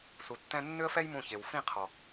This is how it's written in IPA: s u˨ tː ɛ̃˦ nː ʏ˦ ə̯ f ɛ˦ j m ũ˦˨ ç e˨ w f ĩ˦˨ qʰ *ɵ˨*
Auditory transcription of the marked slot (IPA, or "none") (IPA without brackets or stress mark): ɔ˨